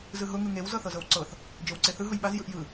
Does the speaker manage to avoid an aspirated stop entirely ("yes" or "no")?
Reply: yes